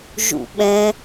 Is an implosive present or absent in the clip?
present